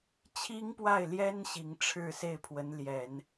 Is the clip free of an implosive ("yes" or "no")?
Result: yes